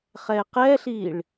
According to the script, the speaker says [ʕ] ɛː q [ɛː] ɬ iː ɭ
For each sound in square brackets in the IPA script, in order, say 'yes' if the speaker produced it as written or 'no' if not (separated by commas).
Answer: no, yes